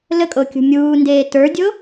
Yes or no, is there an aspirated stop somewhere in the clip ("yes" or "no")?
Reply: no